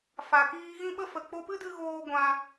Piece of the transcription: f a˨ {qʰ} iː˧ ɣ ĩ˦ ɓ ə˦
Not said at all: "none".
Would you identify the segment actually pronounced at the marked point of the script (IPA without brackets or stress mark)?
k